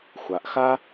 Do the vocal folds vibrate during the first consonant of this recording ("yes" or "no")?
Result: no